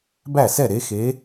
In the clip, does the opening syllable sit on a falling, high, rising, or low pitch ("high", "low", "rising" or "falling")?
falling